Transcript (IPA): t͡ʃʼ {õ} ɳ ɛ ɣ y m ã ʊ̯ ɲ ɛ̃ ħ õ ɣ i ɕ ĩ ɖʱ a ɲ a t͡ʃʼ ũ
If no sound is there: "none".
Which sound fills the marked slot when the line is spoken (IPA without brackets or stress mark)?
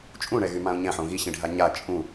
ũ